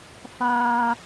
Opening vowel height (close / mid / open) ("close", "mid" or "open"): open